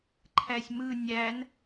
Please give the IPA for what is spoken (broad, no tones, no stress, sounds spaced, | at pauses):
ǃʰ æ sʲ m ɯ nʲ æ n